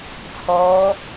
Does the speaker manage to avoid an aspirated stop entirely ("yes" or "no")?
no